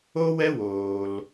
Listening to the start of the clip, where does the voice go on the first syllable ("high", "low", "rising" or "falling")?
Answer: high